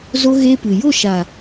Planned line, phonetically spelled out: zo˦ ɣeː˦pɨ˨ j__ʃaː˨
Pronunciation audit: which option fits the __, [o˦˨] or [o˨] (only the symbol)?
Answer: o˦˨